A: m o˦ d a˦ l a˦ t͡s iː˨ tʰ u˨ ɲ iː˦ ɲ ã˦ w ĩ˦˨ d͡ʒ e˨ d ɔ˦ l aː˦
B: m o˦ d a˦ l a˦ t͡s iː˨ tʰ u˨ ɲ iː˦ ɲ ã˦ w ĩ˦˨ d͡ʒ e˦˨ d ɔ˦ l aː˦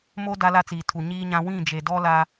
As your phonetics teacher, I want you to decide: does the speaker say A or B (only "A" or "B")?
A